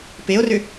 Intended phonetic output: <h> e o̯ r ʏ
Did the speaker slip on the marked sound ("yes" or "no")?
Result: yes